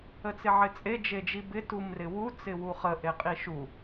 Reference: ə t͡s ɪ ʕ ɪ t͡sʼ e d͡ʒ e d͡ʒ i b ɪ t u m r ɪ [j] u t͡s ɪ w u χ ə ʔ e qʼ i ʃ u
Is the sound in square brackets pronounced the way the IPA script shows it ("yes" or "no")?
no